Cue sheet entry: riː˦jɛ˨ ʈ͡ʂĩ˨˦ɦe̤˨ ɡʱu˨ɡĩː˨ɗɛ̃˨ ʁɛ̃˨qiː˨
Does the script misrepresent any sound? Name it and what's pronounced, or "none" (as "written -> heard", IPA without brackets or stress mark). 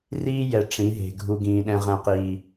none